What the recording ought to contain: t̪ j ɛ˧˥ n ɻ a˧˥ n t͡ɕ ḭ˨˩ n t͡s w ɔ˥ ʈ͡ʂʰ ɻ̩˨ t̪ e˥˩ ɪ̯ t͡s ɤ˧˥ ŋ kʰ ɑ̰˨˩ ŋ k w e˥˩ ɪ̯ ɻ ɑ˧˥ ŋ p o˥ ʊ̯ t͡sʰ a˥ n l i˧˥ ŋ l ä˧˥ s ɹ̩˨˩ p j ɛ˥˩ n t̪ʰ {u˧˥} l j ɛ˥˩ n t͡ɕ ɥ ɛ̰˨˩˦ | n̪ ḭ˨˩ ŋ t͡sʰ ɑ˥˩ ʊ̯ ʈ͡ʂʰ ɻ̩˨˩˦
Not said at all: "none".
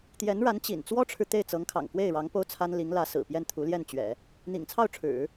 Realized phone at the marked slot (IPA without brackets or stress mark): u˧˥